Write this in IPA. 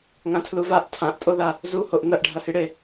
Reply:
ŋ ã tʰ l u v a ʔ tʰ ã ʔ tʼ o ð a | z u h o ʔ n ɐ ʔ ɖʱ ɐ h i ɽ e

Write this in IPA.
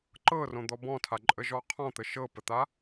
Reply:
ǃ ɤ r õ d̪ ɔ b ɔ̃ tʰ a ǃʼ ə ʒ ɔ qʰ ɔ̃ t̪ ə ʃ ɤ p ə t̪ a

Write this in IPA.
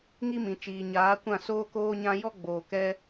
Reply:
ŋ i˦ m ĩ˨ t͡ʃ iː˨ ɲ aː˨˦ kʷ ã˦˨ s oː˦ k oː˦ ɲ ã˦ j ɔ˦ ɡ͡b oː˨ k ɛ˦

